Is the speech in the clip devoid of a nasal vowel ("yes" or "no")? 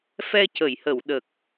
yes